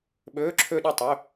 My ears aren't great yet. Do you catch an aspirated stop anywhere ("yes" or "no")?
yes